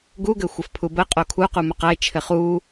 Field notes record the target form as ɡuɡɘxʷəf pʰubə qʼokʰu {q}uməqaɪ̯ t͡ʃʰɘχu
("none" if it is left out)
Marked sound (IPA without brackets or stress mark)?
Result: q